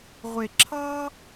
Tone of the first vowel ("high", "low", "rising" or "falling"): low